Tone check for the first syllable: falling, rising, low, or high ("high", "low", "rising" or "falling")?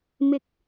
rising